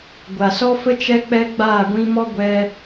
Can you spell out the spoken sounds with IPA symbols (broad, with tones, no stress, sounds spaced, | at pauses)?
ɡʷ a˨ s ɔ˦ f ə˦ t͡ʃ ɛ˦ k͡p ɛ˦ ɡ͡b aː˦˨ ɡʷ ĩ˧ m ɔ˦ ɡʷ ɛ˧